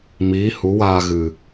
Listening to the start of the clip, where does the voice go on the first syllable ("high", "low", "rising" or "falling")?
rising